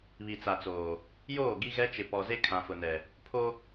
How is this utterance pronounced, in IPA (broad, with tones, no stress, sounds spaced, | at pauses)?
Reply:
β i˨ t͡s a˨ t͡s oː˨ | j oː˦˨ ɡ i˦ ɣ ɛ˦ t͡ʃ ɪ˨ p ɔ˨ z e˦ kʰ ã˨ f ʊ˨ n ɛ˨ | pʰ o˦